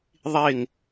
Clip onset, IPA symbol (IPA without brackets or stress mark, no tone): ðˤ